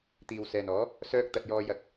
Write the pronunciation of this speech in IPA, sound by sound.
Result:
t̪ iː˨ w s ɛː˨ n ɔː˨˥ | s œː˧ k̚ t̪ ɐ˨ t̚ j ɔː˧ j ɐ˧ k̚

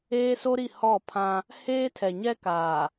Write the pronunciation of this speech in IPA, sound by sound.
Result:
eː˦ s o˦ ɾ i˦˨ h ɔ˦˨ pʰ ã˦ | h eː˦ tʰ ɛ˨ ɲ ɛ˦ k aː˨

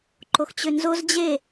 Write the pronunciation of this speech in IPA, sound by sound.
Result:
ǃ o x t͡ɕ ø n z o z d͡ʑ e

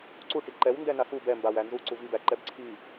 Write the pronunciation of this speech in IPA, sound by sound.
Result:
ǀ u ʈ i ǃ ɛ w n d ɛ n a x u b ɛ m b a w æ n z u ǀ u v i b æ ǃ ɛ b ǀʰ i

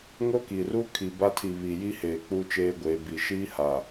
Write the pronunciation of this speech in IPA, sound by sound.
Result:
ŋ o˦ k i˨ r u˦ kʰ i˨ b a˦ tʰ i˨ β i˨ j i˦ h eː˨ k͡p u˦ t͡ʃ eː˦ ɡʷ eː˨˦ b i˨ ʃ iː˦ h a˨

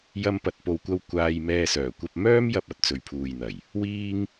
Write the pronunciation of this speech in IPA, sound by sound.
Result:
j ɐ˧ m p ɐ˨ t̚ p o˨ w kʷ ɐ˧ w kʷ aː˧ j m ɛː˧ s œː˨˩ kʷ ɐ˧ p̚ m œː˥ m j ɐ˧ p̚ ɐ˨˥ t̚ t͡s ɵ˨ ɥ pʰ uː˨ j n̪ ɐ˨˩ j | w iː˥ ŋ

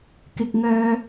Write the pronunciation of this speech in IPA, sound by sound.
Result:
k ɪ˥ k̚ ŋ œː˥

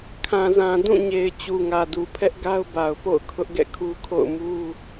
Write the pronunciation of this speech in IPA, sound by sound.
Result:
kʰ ã˨ z ã˨ d ũ˦˨ ɲ e˨ ɪ̯ t͡ɕ u˨ ŋ ä˨ d u˨ pʰ ɛ˦ ʔ ɡ a˦ ʊ̯ b a˨ ʊ̯ p o̰˦˨ ʊ̯ kʰ ʊ˦ ʔ ɡ ɛ̰˦˨ kʰ u˦ kʰ o̰˦˨ ʊ̯ m u˦

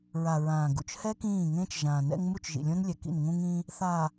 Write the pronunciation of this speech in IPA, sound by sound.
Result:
ɹ a˨ ɹ ãː˨ ɡ ṵ˨ t͡ʃ h ɛ˦ k ĩː˦˨ ŋ ẽː˦ t͡ʃ ʒ ãː˨ n ɛ̰˦ ŋ m u˦˨ t͡ʃ ʒ ḭ˨ lʲ õ˦ n lʲ ɛ˨ k ḭ˦˨ n ŋ ũ˦ ŋ ĩ˦ | θ a˨

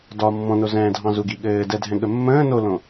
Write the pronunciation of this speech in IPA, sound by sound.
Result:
d ɒ mː ɔ̃ n o z ɛ̃ː dʱ ɑ̃ z u ɡ i ɠ ɘː d ɛ dʱ ɛ̃ ɠ ə mː ə̃ː n o l õ

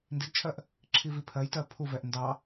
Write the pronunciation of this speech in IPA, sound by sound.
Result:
n d i d t͡ʃʰ ɜ ʔ | ǁʰ i v i pʰ ɜ j t ɜ pʰ u v ɛ ʔ n d ɑ

